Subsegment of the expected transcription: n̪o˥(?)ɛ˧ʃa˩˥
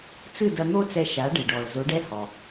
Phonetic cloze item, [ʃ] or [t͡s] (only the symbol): t͡s